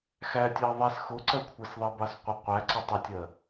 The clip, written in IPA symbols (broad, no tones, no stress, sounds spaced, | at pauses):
x æ tʲ ɑ ðˤ ɛ s x ʊ ǀ ɜ kʷʰ ɛ s ðˤ ɛ b ɑ s qʷ ɪ qʷ æ ǀ ɪ tˤ ɪ tʲ ɜ